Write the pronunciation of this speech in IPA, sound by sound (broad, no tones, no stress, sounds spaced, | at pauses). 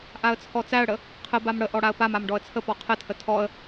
ʔ a ə̯ t͡sʰ ɔ t͡s æ ə̯ ɽ ə | qʰ ə b a m ɽ ə ʔ ɔ ɽ a ə̯ p a m a m ɖ ɔ ə̯ t͡sʰ ə p ɔ qʰ ə tʰ ə tʰ ɔ ə̯